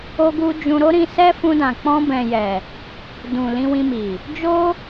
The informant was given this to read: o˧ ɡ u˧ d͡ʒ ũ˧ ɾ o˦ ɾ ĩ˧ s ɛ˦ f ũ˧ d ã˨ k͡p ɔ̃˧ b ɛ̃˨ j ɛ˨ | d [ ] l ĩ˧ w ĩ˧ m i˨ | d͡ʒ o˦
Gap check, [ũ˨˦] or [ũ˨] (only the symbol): ũ˨